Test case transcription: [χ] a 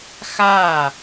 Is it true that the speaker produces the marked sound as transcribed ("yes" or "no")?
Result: no